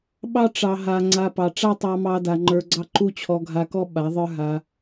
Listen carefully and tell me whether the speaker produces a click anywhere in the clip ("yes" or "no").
yes